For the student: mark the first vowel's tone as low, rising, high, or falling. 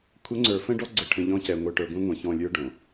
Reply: rising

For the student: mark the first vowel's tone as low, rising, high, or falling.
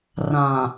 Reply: low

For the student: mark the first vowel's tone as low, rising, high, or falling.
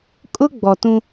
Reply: high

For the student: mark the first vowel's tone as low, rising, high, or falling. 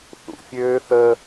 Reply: low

